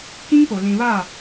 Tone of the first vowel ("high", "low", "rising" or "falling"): high